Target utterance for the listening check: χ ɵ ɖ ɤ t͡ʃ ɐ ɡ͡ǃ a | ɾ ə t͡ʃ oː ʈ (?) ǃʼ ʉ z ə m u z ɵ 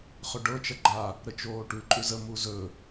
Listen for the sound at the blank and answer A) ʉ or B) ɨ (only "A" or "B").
A